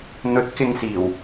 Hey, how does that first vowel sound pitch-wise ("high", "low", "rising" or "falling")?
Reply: rising